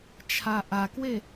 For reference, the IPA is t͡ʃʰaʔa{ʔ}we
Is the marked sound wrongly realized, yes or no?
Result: yes